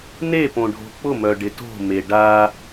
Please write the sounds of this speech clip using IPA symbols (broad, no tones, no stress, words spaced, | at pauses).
ne põɖʱo̤k͡pʊ mœɖɪto̤ meɖa